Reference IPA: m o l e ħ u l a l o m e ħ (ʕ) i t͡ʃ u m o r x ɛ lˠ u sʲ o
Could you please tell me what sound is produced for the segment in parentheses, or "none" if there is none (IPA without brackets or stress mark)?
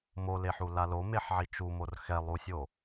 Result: ʕ